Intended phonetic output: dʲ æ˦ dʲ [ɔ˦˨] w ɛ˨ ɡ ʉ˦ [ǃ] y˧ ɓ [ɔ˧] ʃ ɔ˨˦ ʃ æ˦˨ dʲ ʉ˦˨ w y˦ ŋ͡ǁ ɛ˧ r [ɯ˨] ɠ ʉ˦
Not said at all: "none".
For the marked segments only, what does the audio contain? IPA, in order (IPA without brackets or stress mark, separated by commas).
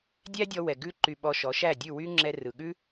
ɔ˧, ǃ, ɔ˧, ɯ˨